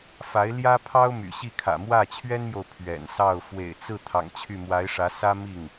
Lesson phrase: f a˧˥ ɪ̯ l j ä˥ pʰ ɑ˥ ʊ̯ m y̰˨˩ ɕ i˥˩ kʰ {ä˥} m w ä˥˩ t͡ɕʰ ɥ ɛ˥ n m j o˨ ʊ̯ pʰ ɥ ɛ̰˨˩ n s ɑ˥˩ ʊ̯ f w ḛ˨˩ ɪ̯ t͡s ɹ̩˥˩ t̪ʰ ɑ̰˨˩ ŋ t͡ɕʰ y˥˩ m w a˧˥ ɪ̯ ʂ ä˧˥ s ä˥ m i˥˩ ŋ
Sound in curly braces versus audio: incorrect: ä̰˨˩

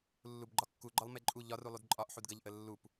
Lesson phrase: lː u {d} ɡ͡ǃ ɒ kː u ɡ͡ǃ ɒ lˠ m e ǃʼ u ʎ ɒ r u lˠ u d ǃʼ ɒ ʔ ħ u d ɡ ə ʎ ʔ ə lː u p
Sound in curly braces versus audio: incorrect: b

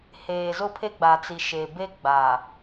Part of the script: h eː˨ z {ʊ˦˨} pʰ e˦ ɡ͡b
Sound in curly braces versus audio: incorrect: ʊ˦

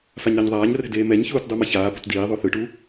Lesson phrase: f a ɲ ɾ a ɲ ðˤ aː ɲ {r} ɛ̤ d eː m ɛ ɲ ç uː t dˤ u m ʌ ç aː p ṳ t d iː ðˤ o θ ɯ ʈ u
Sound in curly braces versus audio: correct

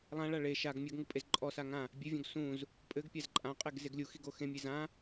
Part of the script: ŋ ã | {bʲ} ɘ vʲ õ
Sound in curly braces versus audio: correct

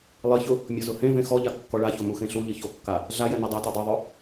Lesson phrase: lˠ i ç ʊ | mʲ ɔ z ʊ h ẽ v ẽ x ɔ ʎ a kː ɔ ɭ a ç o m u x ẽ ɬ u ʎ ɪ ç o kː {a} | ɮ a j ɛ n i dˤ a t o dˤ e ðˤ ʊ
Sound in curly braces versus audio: correct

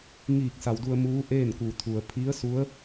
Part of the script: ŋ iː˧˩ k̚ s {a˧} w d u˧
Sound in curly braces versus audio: incorrect: a˩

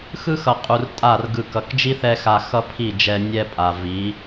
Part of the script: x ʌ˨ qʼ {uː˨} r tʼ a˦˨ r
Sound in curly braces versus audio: incorrect: u˨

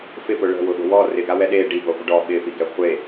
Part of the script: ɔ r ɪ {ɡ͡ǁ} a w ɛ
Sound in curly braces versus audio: incorrect: ɡ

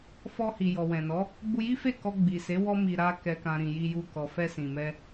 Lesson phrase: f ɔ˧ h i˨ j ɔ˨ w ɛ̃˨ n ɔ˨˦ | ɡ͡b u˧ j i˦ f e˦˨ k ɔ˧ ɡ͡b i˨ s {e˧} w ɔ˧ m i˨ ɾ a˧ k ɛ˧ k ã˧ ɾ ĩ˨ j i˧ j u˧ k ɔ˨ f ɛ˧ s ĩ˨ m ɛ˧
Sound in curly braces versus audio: incorrect: e˨˦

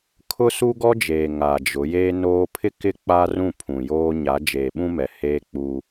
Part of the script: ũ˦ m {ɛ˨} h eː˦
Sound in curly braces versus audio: correct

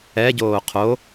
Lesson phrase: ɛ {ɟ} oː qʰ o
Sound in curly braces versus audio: correct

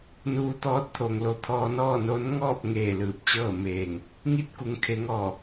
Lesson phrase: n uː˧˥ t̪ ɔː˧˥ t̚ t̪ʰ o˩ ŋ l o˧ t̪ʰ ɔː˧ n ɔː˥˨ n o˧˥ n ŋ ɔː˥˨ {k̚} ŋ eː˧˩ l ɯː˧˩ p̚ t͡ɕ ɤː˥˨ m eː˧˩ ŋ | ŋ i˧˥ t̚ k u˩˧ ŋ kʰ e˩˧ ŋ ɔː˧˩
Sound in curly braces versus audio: incorrect: p̚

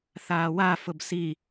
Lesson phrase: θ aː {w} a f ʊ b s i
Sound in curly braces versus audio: correct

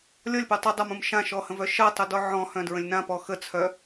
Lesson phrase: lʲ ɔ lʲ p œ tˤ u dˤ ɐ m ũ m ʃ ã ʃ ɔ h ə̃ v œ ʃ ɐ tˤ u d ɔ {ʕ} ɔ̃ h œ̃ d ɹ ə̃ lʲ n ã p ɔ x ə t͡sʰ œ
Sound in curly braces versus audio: correct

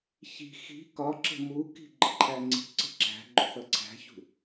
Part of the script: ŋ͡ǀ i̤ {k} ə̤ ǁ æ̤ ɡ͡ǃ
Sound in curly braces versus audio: incorrect: ǀ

